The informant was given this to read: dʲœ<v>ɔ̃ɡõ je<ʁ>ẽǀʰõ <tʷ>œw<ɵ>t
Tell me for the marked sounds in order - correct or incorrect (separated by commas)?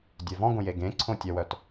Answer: correct, incorrect, incorrect, incorrect